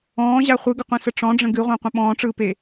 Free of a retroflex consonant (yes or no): no